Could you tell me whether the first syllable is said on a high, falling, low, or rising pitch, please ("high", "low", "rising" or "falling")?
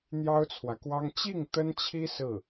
high